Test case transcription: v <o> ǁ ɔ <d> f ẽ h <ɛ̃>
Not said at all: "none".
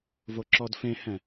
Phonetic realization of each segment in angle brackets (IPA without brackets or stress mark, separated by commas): o, d, ɛ̃